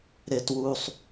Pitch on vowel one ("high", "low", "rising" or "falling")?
low